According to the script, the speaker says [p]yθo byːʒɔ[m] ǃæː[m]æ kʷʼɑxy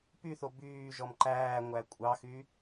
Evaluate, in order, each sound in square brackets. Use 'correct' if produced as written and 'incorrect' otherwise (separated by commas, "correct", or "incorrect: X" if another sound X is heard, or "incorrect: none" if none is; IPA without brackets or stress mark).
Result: correct, correct, incorrect: ŋʷ